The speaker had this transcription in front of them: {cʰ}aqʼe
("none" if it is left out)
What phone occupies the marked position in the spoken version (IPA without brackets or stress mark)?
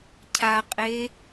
cʰ